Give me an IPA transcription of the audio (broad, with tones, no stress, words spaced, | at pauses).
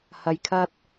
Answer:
hɐ˨jkʰɐ˧t̚